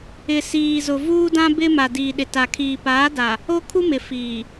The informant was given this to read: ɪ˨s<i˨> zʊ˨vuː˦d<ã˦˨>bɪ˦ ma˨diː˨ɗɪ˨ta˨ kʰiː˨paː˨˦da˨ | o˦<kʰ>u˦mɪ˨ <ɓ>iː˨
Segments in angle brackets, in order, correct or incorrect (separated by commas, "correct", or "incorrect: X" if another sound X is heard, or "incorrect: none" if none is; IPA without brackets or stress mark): incorrect: iː˨, incorrect: ã˦, correct, incorrect: f